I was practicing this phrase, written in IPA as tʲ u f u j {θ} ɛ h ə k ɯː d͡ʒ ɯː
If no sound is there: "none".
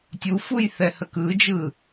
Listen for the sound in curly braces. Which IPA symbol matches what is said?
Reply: θ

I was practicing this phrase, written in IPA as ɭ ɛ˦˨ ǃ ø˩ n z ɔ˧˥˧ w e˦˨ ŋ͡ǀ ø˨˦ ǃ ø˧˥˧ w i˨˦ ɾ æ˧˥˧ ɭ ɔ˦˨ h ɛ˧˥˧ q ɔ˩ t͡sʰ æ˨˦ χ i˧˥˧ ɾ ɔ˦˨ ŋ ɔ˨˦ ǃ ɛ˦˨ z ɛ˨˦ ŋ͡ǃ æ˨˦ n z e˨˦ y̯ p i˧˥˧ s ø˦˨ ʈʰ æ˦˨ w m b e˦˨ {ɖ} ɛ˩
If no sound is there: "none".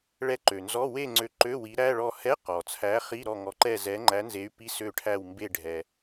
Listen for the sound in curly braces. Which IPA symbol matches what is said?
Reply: ɖʱ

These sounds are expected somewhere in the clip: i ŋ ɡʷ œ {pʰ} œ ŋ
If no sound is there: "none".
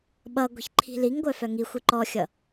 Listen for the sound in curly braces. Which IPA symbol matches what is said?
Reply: f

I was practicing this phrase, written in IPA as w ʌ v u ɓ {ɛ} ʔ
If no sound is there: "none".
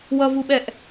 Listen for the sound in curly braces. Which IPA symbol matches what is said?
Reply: ɛ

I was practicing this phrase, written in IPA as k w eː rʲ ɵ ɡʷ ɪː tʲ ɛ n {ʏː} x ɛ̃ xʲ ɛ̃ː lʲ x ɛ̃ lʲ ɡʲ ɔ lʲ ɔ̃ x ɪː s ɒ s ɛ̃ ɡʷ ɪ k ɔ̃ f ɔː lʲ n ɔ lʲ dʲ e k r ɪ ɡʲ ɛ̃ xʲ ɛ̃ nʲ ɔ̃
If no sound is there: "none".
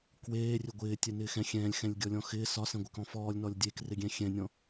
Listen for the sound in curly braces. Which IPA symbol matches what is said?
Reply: ɪː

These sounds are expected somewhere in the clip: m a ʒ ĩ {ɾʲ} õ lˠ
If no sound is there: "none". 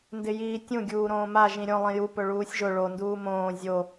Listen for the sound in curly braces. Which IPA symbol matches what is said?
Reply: ɾʲ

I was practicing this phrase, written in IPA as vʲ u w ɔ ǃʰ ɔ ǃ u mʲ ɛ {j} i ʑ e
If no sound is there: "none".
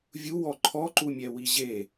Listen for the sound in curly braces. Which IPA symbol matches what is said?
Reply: w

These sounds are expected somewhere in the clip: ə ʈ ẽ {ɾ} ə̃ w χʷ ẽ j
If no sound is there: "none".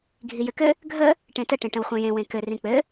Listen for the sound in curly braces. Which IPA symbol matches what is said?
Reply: ʈ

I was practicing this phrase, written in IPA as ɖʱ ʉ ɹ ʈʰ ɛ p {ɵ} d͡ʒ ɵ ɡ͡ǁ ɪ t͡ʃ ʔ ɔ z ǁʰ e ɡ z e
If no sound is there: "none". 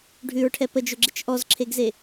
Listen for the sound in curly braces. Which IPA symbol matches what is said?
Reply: ə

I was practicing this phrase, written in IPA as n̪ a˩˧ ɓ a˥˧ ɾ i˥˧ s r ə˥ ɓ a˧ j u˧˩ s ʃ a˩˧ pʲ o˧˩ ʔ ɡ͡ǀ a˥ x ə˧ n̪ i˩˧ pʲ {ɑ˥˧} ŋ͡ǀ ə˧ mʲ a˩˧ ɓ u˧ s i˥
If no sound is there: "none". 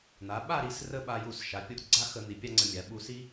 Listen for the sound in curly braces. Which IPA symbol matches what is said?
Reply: ɑ˥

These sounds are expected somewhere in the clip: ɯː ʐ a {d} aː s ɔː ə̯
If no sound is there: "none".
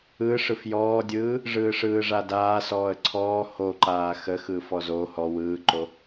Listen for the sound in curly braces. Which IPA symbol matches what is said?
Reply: d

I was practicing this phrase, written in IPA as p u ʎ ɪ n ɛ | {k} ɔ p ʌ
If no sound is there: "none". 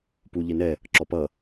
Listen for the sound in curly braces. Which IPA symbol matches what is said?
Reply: ǁ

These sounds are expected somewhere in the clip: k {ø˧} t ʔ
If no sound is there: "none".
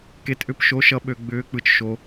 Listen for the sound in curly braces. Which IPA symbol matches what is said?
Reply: e˧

